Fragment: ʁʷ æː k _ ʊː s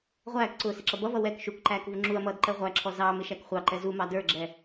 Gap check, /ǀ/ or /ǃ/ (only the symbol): ǀ